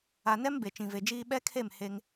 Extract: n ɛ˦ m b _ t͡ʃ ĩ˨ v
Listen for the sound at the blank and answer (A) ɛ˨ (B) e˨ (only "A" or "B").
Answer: B